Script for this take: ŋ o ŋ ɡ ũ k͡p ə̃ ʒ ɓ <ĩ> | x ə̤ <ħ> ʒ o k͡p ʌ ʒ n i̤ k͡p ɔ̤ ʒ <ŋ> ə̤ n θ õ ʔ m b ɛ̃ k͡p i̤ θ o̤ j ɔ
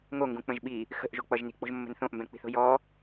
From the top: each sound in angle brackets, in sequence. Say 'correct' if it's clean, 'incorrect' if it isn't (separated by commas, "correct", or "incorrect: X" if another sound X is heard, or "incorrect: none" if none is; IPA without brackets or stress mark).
incorrect: i, incorrect: ʔ, incorrect: mː